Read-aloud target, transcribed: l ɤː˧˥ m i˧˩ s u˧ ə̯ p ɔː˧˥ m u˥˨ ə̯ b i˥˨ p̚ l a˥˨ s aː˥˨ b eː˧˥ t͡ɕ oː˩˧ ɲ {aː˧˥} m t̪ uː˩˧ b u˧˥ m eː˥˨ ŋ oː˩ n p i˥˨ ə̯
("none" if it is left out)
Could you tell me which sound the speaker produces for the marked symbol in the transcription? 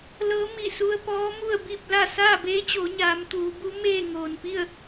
aː˩˧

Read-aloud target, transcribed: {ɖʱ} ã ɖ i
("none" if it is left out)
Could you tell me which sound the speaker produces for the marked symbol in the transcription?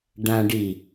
ɖ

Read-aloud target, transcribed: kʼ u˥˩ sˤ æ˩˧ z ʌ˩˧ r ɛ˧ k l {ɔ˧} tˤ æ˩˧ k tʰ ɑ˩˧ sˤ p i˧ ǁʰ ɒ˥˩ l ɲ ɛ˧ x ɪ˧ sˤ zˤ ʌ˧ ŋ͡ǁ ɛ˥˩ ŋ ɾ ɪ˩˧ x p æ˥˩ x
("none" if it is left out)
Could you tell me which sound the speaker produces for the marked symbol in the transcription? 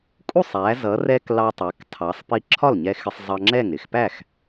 ɑ˧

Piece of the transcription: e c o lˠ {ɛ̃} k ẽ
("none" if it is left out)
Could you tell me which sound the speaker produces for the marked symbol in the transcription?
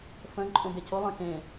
ẽ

